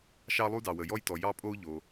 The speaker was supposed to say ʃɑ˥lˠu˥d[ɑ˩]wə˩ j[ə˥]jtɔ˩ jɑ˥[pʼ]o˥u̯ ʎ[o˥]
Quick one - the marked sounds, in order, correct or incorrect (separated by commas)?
correct, incorrect, correct, incorrect